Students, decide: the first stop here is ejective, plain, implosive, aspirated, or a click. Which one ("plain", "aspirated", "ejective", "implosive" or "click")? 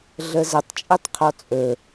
plain